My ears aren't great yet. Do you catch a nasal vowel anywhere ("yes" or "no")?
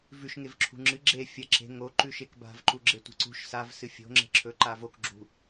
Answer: no